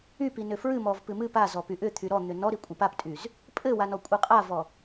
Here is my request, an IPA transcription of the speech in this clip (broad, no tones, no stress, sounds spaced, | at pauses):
y p i n ʏ f ɹ ɨ m ɔ v p ɨ m ɨ p a z ɔ p y ʔ ʏ t̪ʰ y ɾ ɔ n̪ ʏ n ɔ ɾ i kʷʼ ɨ p a p tʼ y z | pʼ ɘ w a n ɔ kʷʼ ɨ qʼ a v ɔ